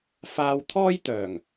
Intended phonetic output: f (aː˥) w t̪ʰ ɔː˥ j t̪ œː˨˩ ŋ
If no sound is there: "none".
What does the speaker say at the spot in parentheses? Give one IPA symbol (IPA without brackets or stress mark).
aː˧